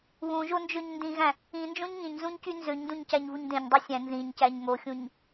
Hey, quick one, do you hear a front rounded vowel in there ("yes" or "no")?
yes